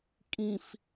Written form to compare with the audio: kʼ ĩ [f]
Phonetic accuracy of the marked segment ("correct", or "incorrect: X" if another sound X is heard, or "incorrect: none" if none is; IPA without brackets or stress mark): correct